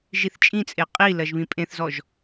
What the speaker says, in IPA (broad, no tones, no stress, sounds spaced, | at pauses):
ʒ i θ t͡ʃʼ ĩ t͡sʼ e qʼ i l ɜ ʒ β ĩ pʼ ẽ θ z ɔ ʒ